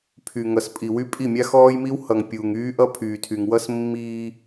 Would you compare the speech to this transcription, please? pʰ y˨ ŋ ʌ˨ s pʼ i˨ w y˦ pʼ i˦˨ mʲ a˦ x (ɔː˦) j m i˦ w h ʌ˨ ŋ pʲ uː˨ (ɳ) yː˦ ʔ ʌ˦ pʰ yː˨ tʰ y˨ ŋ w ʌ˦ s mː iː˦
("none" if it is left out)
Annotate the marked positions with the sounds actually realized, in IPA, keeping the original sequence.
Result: ɔː˦, ŋ

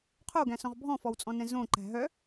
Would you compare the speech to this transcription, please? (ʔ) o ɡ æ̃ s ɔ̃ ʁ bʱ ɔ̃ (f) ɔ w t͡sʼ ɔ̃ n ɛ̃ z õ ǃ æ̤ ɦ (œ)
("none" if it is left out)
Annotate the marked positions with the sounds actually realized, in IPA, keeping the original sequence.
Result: qʰ, f, œ

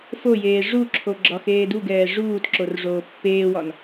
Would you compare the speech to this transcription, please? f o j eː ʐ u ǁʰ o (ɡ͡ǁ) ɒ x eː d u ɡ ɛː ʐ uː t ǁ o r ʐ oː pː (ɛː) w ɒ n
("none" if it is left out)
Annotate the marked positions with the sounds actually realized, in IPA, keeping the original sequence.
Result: ɡ͡ǁ, eː

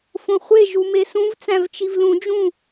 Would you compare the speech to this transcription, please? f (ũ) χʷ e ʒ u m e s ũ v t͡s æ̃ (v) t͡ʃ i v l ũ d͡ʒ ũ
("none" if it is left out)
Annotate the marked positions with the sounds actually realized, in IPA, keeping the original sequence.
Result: õ, v

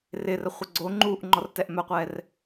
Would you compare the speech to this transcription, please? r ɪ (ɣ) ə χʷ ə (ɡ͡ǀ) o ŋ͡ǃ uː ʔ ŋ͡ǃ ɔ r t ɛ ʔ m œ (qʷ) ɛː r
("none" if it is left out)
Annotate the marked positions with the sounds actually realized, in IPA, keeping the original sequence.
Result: r, ɡ͡ǀ, qʷ

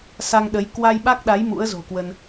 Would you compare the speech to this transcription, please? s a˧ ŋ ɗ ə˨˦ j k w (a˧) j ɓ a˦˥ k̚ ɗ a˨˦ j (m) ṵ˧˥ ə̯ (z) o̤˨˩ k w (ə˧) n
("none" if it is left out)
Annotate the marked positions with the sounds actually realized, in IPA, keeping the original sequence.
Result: a˧, m, z, ə˧

